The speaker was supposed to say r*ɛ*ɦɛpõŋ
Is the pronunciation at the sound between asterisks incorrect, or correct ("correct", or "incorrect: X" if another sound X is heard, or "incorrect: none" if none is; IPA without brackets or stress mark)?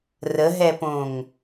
incorrect: ə